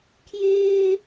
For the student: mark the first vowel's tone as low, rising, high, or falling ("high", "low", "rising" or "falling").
high